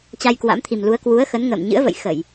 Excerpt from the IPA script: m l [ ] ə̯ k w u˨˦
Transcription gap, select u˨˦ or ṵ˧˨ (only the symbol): u˨˦